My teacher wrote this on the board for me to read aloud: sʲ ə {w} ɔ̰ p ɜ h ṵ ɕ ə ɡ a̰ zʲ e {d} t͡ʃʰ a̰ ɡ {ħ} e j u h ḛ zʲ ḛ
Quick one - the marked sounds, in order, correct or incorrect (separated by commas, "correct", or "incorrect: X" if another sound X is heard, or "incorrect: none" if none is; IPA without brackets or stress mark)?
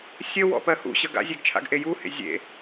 correct, incorrect: ɡ, incorrect: ʔ